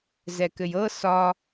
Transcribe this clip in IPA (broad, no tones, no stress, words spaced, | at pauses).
zɛkɘjɤ sɒ